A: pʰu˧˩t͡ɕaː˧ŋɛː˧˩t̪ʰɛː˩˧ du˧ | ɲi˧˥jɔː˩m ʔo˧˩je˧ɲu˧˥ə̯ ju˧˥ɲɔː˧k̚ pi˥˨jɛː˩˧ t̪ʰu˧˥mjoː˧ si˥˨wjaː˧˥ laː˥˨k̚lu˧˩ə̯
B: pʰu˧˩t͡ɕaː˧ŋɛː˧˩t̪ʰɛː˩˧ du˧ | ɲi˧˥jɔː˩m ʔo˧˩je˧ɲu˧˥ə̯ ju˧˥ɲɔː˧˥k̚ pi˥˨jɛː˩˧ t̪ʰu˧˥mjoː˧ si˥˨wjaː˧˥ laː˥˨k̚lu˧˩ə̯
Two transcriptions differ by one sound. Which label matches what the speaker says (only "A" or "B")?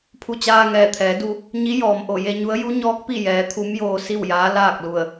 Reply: B